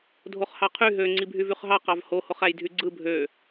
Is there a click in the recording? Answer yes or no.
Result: yes